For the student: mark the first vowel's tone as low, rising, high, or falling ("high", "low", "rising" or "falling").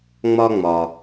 high